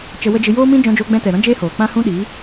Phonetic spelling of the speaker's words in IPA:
t͡ʃ ə˧ w ə˦ d͡ʒ ɨ˧ j oː˦ m ĩ˦ d͡ʒ ɔ̃˧ d͡ʒ oː˧ ɡ͡b ɛ̃˧ t ɛ˨ ɾ ɔ̃˦ d͡ʒ eː˦ h oː˨ k͡p ã˦ h ũ˦ ɗ i˨˦

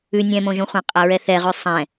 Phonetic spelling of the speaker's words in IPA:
ʉ nʲ ɛ̃ m õ ʒ õ χʷ ã qʼ a ɹ ɛ θ ɛ ʁ ʉ sˤ ɛ̃

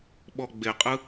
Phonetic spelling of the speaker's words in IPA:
ɓ ɔ ɡ͡b e qʼ ɯ

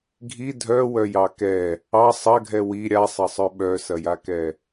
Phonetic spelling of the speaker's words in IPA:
ɡʱ i dʱ œ w œ j ɑ k ɛ | ɑ sˤ ɐ ɡʱ ɛ w i ɾʲ a sˤ ɐ sˤ œ ɓ œ s ɐ j a k ɛ

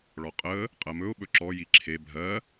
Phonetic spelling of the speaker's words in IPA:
ɭ ɔ qʼ ə | qʼ ɜ m ɵ ʊ̯ ɓ ɵ ǁ ɔ j i ǁʰ e bʱ ɜ

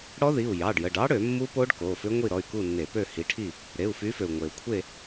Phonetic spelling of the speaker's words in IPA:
ɽ ɔ˦˥ ð i˩˧˩ u̯ j ɑ˩˧˩ ɖ j ə˩˧˩ ɖ ɑ˦˥ ɽ ø˧˩˧ mː u˦˥ p o˦˥ ɖ k o˩˧˩ f ʏ˦˥ ŋʷ i˥˨ ɾ ɔ˩˧˩ y̯ k u˥˨ nː e˧˩˧ p ø˥˨ h i˨˦ ʈʰ i˥˨ | ɾ e˩˧˩ u̯ f y˨˦ f ø˩ u̯ ŋʷ e˩ u̯ kʷʰ e˥˨

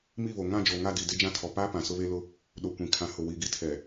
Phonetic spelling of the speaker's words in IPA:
m i˦˨ β o˨ ŋ ã˦˨ d͡ʒ o˨ ŋ a˦˨ d i˨ d e˦ d͡ʒ ã˦ tʰ ɔ˨ p aː˦ p ã˨ s ʊ˦ β e˦ l ʊ˦ | ɗ o˨ kʷ ĩ˨ kʰ ã˨ h ʊ˨ w i˨ ɡ i˦ tʰ ɛ˨

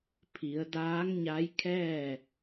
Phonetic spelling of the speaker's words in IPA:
pʰ i˩˧ ə̯ d aː˧˥ ŋ ɲ a˧˥ j kʰ ɛː˥˨

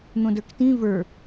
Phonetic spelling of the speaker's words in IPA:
n̪ õ d ə˞ k t ĩ v ə˞

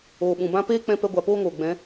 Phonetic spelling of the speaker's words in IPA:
oː˨ ɓ ũ˨ b ã˦ p eː˦ k͡p ɛ̃˧ p ɛ˧ ɡʷ a˨ p oː˦ ŋ oː˨ ɡ͡b ɛ̃˨˦

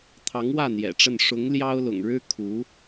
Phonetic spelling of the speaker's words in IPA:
t̪ʰ ɑ˧˥ ŋ w ä˥˩ n̪ j ɛ̰˨˩ ʈ͡ʂ ə˥˩ n ʂ ʊ˧˥ ŋ l j ɑ˥ ʊ̯ l ʊ̰˨˩ ŋ ɻ ɻ̩˥ kʰ u˧˥

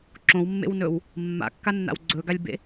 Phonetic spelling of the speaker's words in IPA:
ǁ õ w mː ḛ w n ɵ w | mː a̰ kː a nː a̰ w ɡ͡ǀ ɵ ɡ a lʲ b ḛ

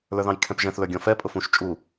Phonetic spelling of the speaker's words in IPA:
l ə˞ ð ɑ̃ j kʰ ɛ̃ p ʒ ɛ̃ θ l ə˞ ɡʲ ɔ̃ f ɛ pʼ ʊ f ũ ʃ t͡ʃʼ u

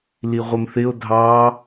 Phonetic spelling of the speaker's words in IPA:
l i ʁʷ ə m θ ɪ o̯ dʱ ɑ

